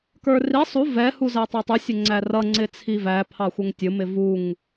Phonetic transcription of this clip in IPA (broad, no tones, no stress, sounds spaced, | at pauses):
k ə˞ r i sˤ u v ɛ h u z æ tˤ ɛ tˤ u sʲ ʊ ŋ͡ǀ æ r ʌ ŋ͡ǀ ɪ t͡sʰ i v æ pʰ ɑ xʷ ə ŋ tʲ ʊ m ɪ v u ŋ